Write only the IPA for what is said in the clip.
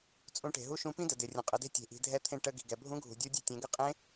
t͡sʼ ũ˧˥ ʈ e̤˩ ɦ u˥ ʃ ũ˧ p ĩ˥ d ə˩ d ɪ˩ rʲ ə̃˩ qʼ ə˩˧ d e̤˥ tʲ e̤˩˧ ʔ i̤˩˧ dʱ ɛ˧˥ t̪ʰ ẽ˧ ʈ ə˧ ɡ i̤˩ ɡ ɛ˩ bʱ ũ˧˥ ɡʱ ṳ˩ dʲ u˧˥ dʲ e̤˧ tʲ ẽ˩˧ ɡ ə˧˥ qʼ ẽ˧˥

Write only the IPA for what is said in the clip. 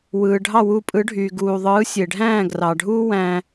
w ɯː˩ ɖʱ ɑ˥˩ w u˧ pʼ ɯ˩˥ ɖʱ yː˩ ɡ uː˩ ðˤ ɯː˩˥ sʲ e˩ ɖʱ æ̃ː˥˩ ɡ r ɑ˩ ɖʱ uː˥ w æ̃˧

